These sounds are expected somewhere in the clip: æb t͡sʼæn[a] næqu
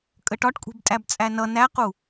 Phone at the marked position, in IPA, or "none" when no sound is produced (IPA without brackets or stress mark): ʌ